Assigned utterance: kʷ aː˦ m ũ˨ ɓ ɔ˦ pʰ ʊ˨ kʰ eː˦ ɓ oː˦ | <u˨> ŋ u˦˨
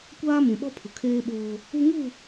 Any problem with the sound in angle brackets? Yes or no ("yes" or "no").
yes